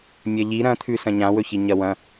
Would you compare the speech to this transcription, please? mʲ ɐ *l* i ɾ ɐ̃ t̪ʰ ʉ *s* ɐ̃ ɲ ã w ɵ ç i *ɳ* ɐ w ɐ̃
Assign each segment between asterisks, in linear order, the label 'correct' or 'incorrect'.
incorrect: ʎ, correct, incorrect: ɲ

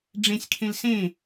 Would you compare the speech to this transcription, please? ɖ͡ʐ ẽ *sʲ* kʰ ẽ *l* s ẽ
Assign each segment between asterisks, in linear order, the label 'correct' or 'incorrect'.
correct, correct

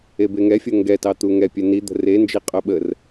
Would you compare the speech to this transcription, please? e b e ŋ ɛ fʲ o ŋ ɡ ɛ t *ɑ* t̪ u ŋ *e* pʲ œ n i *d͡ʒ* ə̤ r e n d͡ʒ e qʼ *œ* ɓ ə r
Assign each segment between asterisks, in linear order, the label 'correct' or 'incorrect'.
correct, incorrect: ɛ, incorrect: d̪, correct

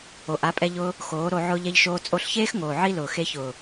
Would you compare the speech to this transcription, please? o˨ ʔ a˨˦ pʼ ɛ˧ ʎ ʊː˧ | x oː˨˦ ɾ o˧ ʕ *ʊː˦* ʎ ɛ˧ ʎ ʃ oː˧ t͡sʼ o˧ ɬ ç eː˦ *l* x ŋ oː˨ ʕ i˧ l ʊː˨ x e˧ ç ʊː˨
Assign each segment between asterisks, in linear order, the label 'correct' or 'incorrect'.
incorrect: ʊː˧, incorrect: none

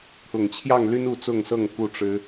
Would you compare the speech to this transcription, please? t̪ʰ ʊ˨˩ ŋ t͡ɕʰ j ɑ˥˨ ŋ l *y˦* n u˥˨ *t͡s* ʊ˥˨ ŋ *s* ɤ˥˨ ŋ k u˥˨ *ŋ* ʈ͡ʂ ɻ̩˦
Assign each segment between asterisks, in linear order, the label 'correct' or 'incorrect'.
correct, correct, correct, incorrect: none

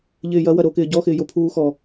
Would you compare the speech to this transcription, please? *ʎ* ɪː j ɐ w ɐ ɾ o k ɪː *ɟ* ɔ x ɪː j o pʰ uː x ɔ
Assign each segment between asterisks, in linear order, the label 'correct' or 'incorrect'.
correct, correct

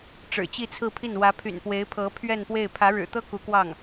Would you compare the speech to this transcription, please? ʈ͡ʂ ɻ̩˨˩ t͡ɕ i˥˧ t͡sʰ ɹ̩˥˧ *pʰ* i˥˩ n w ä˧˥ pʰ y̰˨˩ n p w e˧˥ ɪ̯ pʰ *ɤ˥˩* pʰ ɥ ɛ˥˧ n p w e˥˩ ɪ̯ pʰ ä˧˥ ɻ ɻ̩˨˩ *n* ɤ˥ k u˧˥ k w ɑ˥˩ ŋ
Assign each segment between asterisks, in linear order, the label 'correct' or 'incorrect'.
correct, incorrect: ɤ˧˥, incorrect: t̪

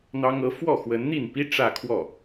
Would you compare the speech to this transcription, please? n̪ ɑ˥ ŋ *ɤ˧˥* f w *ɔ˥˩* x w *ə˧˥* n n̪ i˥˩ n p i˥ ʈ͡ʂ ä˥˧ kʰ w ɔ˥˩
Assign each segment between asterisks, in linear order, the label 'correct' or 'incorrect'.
correct, correct, correct

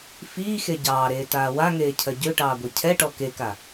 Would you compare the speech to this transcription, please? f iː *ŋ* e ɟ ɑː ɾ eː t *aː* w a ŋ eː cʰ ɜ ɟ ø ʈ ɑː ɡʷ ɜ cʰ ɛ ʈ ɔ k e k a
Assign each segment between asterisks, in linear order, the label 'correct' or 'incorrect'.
incorrect: x, correct

